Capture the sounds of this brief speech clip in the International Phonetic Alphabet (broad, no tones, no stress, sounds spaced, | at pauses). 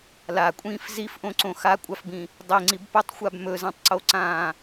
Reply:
l a kʷʼ ĩː f z i f ʔ õ ǀ õ x a kʷʼ a f b ĩ | dˤ i ŋ͡ǀ i b p ɵ tˤ xʷ a b m ɵ z ã tˤ ǀ o ǀ ãː